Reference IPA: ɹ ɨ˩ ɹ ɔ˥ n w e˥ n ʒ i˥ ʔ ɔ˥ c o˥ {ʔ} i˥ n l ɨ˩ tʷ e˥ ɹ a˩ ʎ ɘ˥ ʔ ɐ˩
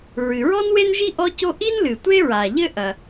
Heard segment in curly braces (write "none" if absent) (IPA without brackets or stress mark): ʔ